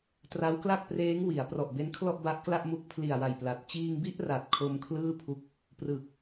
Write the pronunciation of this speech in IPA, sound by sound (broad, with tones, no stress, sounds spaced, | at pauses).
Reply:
t r a˦˥ w k l a˥˩ k̚ p r eː˦˥ ŋ w i˩˦ a̯ p r ɔ˨˩ ʔ b e˦˥ n kʰ l ɔ˥˩ ʔ b a˦˥ ʔ k l a˥˩ ʔ m u˦˥ k̚ pʰ l i˨˩ a̯ w a˨˩ j p l a˨˩ t̚ t͡ɕ iː˧ ŋ b i˥˩ ʔ r a˨˩ t̚ kʰ o˧ m kʰ l ɯː˥˩ pʰ u˦˥ k̚ | p r ɯ˨˩ k̚